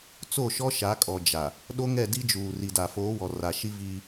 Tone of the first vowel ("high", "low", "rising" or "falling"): falling